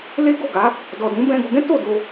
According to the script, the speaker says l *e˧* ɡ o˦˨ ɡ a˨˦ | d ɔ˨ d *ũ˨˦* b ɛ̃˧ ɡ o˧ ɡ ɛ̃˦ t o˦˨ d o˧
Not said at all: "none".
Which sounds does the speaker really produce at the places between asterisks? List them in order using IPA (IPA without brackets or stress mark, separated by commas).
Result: e˦, ũ˨˦